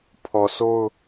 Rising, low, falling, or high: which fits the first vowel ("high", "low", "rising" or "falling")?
low